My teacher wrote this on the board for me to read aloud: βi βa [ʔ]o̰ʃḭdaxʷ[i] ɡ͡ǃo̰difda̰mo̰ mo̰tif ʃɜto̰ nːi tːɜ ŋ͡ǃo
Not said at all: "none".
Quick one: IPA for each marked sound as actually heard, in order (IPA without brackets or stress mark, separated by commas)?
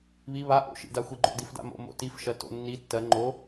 ʔ, i